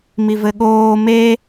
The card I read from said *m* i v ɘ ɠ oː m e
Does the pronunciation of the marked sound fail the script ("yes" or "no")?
no